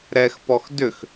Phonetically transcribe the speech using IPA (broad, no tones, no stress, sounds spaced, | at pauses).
ɾ ɛ x p ɔ x d ʏ x